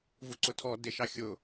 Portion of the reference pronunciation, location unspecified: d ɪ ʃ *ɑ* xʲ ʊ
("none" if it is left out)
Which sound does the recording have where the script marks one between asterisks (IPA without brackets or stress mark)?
ɑ